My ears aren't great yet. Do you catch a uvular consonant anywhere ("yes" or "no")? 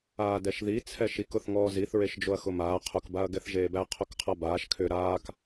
yes